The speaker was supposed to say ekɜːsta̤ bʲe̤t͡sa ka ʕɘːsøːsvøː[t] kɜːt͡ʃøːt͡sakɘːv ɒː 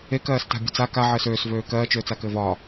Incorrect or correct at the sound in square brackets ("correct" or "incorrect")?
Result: incorrect